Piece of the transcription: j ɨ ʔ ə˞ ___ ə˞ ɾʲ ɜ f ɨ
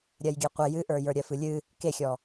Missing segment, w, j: j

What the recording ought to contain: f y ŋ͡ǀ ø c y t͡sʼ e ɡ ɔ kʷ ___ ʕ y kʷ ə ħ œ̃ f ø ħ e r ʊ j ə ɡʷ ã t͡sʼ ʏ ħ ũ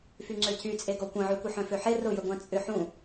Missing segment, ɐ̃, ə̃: ɐ̃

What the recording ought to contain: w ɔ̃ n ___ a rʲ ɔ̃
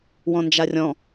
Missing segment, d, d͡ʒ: d͡ʒ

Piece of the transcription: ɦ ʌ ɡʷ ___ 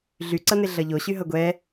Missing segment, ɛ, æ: ɛ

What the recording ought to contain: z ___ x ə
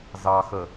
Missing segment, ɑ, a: ɑ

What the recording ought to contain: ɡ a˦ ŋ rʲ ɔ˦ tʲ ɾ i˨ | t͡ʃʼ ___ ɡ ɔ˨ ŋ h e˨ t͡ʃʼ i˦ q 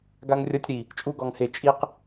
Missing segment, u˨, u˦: u˦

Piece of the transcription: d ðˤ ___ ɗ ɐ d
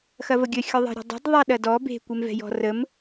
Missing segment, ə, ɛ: ɛ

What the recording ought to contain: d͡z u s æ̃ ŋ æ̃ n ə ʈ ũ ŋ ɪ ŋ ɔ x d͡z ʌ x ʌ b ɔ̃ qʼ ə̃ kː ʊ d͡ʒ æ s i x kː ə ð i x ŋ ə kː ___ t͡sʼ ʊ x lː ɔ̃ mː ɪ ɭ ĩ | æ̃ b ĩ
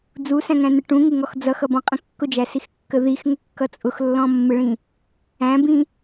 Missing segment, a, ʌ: ʌ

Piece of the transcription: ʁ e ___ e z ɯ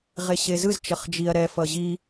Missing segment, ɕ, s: ɕ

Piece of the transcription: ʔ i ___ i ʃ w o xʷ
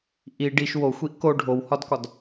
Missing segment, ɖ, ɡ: ɖ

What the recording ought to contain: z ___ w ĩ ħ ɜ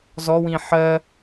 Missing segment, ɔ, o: ɔ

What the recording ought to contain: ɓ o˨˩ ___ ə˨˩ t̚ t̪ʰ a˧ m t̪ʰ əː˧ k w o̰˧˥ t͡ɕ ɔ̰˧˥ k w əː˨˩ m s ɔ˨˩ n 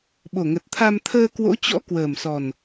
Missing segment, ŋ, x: ŋ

